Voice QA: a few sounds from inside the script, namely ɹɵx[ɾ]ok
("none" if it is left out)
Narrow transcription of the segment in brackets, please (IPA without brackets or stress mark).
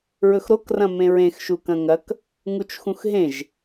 ɾ